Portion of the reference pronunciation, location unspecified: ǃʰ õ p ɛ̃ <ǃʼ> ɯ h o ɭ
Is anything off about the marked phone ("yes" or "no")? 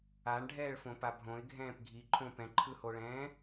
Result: yes